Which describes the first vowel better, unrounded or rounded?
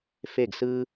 unrounded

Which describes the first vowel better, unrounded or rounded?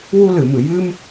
rounded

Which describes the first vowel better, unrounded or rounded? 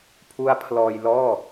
rounded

